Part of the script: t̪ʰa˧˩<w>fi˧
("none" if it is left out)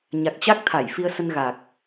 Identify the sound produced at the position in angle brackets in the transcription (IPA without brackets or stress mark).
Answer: j